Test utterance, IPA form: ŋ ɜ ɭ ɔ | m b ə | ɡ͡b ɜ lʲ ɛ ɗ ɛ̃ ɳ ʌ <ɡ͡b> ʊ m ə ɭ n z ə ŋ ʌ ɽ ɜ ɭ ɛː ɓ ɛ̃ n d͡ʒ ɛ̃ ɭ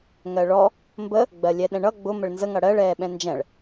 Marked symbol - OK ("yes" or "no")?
yes